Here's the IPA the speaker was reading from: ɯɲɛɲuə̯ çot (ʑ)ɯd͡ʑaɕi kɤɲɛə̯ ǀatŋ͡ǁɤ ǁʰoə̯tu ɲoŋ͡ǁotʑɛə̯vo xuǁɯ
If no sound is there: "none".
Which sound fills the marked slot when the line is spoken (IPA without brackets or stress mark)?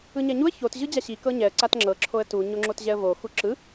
ʑ